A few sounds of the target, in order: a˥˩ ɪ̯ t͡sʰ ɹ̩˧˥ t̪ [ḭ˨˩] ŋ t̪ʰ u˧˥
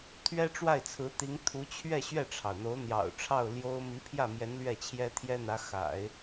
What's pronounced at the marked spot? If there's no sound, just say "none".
i˧˥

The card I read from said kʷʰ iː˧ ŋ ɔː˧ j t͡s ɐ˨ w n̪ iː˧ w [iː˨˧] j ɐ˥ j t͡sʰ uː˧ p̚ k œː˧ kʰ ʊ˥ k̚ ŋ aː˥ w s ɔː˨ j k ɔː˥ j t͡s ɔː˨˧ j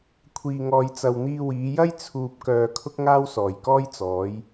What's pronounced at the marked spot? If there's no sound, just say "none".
iː˨˧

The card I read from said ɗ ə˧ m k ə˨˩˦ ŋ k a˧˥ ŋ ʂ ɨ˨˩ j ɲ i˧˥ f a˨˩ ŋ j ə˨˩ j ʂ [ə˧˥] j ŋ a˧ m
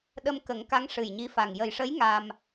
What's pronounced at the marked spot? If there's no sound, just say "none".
ə˧˥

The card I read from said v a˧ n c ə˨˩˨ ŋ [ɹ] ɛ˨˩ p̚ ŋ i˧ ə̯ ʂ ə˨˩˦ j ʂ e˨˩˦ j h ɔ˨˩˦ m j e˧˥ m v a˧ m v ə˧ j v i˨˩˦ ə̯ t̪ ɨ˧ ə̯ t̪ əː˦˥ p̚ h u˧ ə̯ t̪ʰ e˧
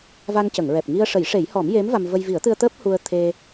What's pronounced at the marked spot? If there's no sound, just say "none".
ɹ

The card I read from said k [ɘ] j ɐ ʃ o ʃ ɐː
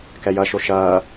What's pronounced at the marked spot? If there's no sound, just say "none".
ɛ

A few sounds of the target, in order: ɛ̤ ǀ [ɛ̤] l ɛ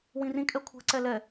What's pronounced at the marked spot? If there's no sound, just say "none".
ɛ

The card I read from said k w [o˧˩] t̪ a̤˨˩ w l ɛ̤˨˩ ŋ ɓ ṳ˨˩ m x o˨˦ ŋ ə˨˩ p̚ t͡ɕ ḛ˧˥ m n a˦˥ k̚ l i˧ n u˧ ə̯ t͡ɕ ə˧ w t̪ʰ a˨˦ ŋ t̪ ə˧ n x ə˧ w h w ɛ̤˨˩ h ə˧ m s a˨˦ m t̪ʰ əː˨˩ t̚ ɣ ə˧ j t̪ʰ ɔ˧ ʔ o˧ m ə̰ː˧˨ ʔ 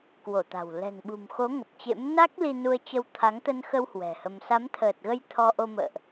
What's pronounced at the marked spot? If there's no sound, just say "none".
o˧˩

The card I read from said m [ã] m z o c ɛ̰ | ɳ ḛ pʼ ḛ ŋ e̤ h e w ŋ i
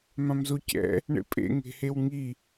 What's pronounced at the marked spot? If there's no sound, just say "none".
ã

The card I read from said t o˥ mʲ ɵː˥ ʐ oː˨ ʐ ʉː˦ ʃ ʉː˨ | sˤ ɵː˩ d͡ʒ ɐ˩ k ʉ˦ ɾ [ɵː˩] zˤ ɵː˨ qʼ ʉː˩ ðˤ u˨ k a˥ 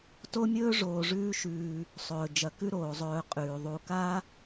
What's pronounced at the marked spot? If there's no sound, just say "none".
oː˩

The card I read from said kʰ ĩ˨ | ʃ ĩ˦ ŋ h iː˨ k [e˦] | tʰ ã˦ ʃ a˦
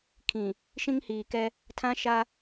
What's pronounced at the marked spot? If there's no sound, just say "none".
ɛ˦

